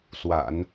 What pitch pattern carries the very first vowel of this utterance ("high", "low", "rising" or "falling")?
low